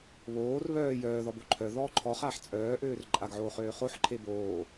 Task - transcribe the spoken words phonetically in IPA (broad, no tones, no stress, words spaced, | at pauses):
βoːr βœː jœːðɔ boǃʰœðɔː ǃʰɔχaːħ t͡sʼœːʔøːr ǃʼaɡʕoː χøːχoħǃʰe boː